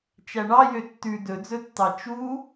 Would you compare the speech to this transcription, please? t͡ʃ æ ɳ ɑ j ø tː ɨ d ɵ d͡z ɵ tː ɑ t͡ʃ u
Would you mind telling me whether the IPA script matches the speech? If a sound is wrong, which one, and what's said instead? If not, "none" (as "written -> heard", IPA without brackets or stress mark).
ɨ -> ʉ